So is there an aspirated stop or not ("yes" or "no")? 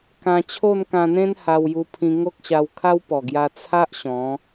yes